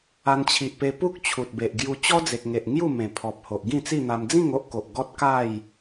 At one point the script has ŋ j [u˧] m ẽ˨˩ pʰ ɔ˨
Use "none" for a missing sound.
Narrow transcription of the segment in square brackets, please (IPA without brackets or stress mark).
u˥˧